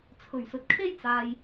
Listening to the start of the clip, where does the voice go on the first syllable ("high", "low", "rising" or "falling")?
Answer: low